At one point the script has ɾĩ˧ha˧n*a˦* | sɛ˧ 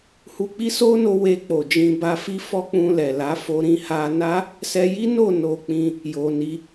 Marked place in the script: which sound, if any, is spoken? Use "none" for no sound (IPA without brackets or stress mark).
a˦